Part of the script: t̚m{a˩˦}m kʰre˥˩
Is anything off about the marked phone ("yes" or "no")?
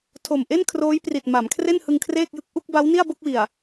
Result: no